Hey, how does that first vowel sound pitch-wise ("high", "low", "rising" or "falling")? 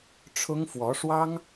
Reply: high